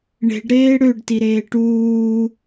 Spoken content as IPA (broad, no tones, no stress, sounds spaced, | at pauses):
ɳ e̤ ɖ ɾ eː ɽ ø ɖ t i ɾ eː ʈ uː